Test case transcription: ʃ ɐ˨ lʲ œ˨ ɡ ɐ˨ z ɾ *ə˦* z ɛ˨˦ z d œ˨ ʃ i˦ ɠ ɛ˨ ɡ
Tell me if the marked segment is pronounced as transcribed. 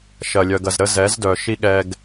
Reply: yes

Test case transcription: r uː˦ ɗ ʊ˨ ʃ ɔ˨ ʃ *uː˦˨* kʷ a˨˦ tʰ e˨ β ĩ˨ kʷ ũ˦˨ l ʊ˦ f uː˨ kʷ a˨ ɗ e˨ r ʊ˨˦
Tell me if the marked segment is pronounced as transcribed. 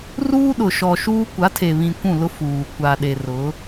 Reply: no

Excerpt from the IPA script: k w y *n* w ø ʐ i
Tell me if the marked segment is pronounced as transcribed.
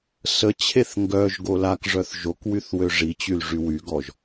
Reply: no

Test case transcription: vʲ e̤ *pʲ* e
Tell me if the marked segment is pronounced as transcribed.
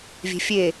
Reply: no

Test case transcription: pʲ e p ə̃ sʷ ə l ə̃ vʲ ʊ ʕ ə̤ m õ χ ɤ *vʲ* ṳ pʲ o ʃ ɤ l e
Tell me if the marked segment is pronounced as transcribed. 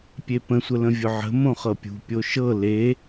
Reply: no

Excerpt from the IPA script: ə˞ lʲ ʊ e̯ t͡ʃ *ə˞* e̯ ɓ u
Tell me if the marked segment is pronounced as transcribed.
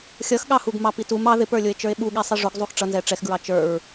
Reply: yes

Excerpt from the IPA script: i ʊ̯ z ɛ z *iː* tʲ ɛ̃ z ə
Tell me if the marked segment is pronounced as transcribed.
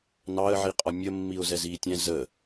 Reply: yes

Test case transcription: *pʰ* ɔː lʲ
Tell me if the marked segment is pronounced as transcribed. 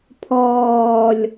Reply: yes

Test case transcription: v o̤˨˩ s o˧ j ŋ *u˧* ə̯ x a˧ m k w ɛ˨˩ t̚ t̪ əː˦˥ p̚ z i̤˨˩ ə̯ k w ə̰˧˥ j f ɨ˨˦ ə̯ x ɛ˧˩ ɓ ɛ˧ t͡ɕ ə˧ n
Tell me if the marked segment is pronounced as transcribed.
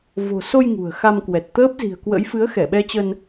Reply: no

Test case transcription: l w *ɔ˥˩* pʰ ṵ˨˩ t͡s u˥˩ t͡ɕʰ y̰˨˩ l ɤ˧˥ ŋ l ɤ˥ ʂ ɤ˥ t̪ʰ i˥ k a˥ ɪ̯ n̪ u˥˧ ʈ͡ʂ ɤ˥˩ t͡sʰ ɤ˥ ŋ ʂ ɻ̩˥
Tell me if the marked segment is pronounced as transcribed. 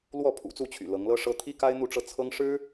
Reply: yes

